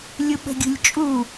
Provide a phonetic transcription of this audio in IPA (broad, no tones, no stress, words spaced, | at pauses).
lʲuɓə̤ɡʲṳlʲt͡ʃʼu